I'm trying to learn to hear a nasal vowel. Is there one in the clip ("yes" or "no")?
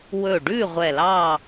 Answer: no